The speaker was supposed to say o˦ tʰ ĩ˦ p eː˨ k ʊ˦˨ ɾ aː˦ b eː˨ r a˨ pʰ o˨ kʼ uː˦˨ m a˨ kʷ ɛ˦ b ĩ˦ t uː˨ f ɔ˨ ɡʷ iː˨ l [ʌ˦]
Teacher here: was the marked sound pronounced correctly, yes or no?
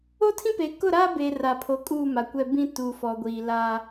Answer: no